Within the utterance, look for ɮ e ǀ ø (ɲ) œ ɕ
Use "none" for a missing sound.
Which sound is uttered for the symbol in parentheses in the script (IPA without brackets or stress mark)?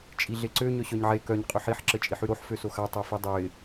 ɲ